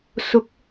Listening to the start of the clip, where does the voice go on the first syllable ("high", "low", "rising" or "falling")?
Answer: rising